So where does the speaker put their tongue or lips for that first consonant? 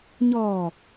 palate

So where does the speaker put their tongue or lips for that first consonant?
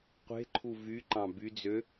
uvula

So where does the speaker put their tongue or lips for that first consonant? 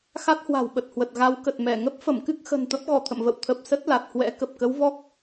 velum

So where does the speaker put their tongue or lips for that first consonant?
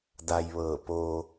tongue tip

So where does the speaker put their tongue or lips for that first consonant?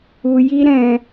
palate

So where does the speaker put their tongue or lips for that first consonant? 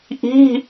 throat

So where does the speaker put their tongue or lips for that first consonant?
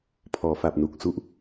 lips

